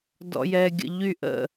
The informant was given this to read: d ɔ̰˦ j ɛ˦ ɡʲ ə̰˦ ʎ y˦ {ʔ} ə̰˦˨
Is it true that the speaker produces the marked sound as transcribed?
yes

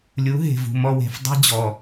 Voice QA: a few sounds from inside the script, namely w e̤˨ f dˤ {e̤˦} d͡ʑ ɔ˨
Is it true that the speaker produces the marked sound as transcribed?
yes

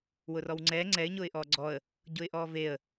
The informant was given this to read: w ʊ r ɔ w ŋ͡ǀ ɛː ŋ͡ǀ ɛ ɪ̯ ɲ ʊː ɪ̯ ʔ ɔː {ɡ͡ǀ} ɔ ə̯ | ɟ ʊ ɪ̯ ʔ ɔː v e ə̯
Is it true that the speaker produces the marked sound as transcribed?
yes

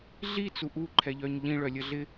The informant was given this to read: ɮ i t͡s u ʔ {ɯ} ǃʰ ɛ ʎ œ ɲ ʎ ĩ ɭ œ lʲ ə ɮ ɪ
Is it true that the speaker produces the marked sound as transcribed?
no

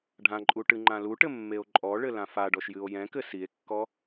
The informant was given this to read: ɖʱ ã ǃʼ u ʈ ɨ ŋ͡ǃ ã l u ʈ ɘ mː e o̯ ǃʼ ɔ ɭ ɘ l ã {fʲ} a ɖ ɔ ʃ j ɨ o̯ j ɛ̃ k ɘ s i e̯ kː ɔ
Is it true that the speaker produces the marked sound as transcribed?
no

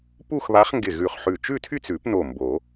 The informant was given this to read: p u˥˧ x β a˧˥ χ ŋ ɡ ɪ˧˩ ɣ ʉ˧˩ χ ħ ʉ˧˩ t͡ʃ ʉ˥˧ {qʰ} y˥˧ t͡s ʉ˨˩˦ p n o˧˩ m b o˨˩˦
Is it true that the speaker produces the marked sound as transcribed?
no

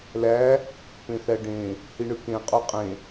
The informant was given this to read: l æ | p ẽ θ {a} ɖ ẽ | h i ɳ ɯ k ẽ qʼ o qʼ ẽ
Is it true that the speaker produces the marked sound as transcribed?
no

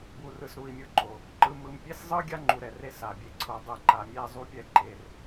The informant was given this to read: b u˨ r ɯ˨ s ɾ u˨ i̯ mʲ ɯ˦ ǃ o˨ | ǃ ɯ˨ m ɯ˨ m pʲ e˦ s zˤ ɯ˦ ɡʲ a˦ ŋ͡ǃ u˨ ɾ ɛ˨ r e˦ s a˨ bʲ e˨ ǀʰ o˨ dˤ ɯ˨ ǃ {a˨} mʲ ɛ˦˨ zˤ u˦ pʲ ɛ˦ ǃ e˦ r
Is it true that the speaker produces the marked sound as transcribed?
yes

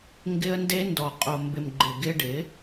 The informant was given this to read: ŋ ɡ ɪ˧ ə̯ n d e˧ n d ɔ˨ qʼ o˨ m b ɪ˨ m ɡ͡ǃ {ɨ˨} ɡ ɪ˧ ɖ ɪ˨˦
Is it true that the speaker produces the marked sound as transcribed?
no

